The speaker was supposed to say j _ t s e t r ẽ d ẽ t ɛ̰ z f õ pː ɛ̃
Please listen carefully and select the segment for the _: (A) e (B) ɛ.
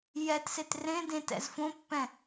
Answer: B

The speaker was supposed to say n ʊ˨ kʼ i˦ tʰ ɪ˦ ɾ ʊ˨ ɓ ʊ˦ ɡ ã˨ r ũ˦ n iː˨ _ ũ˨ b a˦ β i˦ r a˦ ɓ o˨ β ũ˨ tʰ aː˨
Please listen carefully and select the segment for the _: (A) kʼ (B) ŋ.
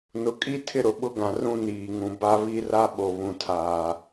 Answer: B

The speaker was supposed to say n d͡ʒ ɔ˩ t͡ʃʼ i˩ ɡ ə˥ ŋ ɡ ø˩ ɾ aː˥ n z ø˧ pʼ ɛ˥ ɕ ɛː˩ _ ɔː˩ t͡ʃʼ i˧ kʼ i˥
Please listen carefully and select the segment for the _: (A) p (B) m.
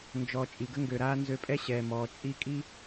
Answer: B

